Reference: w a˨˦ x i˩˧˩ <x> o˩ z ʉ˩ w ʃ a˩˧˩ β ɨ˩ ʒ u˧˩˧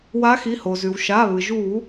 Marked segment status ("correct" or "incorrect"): incorrect